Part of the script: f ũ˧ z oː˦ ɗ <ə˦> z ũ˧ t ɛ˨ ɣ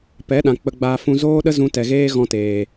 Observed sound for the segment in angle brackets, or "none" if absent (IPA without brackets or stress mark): ə˦